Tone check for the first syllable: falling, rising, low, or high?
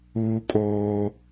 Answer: high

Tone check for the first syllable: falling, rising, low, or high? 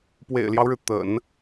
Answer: low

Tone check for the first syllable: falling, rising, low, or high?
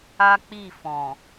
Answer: high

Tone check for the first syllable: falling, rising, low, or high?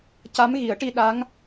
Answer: rising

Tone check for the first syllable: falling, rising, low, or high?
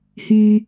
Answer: low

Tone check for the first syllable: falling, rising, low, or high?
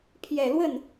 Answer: low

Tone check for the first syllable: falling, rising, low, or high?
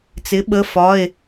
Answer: rising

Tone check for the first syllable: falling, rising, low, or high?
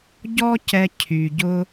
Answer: high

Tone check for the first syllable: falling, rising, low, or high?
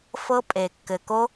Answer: high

